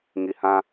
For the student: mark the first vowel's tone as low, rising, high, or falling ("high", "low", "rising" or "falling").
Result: low